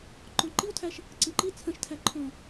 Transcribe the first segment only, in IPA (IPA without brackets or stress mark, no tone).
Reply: ǃ